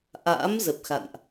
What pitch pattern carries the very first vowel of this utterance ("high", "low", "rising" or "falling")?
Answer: rising